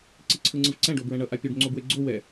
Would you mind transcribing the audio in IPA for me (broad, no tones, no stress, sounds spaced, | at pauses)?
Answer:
ǀ i ǀʰ ɯ ŋ͡ǀ ɯ v ǀ ɛ̃ ɖ o b ɹ ɛ̃ ɳ ʌ ʔ a pʲ u ɖ ŋ͡ǀ o b w e ɡ͡ǀ o w ɛ